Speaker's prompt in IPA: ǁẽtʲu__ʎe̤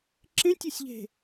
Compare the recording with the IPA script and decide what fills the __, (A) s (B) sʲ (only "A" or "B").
B